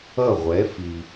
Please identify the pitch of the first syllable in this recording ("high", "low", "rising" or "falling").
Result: falling